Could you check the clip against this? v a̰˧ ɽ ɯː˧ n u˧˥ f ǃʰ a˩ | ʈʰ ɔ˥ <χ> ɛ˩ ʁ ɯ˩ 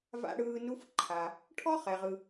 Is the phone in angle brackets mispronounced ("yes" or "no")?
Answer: no